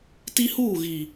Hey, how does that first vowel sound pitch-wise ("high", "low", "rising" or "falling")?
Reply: high